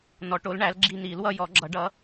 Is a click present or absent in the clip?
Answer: present